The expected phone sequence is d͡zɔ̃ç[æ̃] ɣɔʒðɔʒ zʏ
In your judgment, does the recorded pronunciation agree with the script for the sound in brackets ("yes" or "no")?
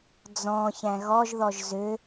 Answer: yes